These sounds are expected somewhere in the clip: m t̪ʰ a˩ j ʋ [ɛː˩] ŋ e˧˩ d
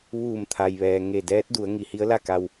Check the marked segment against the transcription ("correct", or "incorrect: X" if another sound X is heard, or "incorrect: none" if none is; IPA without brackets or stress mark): correct